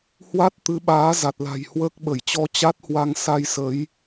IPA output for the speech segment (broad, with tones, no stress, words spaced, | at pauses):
hwa˦˥t̚t̪ɨ˨˦ɓaː˨˦ za˨˩t̚la̤˨˩jhwəː˦˥k̚ɓə˧˩j t͡ɕɔ˧ t͡ɕa˦˥t̚hwa˧ŋ sa˧jsə˨˦j